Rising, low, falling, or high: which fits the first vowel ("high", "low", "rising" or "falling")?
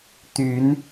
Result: rising